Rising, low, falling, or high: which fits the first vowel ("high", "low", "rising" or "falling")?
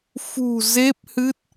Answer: low